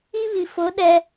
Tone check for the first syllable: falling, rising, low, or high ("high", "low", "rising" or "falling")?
high